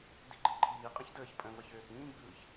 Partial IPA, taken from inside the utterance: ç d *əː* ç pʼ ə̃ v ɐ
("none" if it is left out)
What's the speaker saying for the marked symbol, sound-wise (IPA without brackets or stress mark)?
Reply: əː